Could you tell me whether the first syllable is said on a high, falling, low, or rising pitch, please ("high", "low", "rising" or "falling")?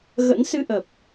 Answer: rising